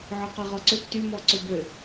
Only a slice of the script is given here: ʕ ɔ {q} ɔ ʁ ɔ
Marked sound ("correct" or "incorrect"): correct